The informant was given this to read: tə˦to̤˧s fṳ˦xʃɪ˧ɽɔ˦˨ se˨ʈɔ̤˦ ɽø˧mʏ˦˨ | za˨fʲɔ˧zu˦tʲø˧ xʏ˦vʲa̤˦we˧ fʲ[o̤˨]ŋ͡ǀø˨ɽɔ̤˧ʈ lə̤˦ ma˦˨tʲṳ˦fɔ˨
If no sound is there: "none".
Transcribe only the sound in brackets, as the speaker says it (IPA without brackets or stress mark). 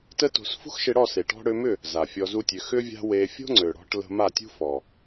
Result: o̤˦